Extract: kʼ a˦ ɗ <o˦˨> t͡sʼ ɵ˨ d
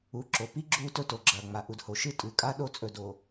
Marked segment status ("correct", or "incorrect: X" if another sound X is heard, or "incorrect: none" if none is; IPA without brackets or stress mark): correct